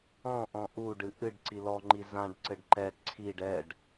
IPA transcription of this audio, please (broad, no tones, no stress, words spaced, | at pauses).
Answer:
ɔ̃ʔɔ̃ ʔuɖɨ ʔɨɖǀi lɔŋ͡ǃi zãɖǀɘɖ ǃɛ ǀʰiɖ ɛɖ